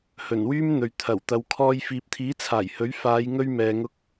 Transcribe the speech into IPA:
h ɵ˨˩ n w yː˥ m n̪ ɵ˨ ɥ t̪ʰ ɐ˨˩ w t̪ ɐ˨˧ w kʰ ɔː˧ j f iː˨ p̚ t̪ʰ iː˨˥ t͡sʰ aː˨˩ j h ɵ˨˥ ɥ f aː˨˧ j ŋ ɵ˧ ɥ m ɛː˨ ŋ ʊ˧ k̚

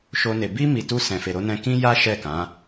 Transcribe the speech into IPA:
ʃ o˦ n e˧ b i˦ m i˧ t u˦ s ɛ̃˧ f e˧ ɾ o˦ n ɛ̃˦ k ĩ˦ j a˦ ʃ ɛ˦˨ k ã˨˦

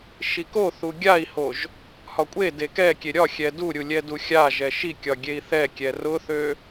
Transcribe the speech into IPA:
ʃ i k o θ u ɡʲ a i̯ h o ʒ | h ɒ kʷʼ e d e k ɛ kʲ e ɾʲ ɒ xʲ ɛ d u ɾʲ u lʲ ɛ d u xʲ a ʒ ɛ ʃ i kʲ ɒ ɡʲ e i̯ θ ɛ kʲ ɛ r ʊ θ ø

